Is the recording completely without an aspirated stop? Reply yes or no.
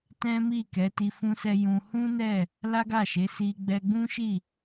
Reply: yes